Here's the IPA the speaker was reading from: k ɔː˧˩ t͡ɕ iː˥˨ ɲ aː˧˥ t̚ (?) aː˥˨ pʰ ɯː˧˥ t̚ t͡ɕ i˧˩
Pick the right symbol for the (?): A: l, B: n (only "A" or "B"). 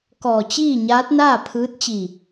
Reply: B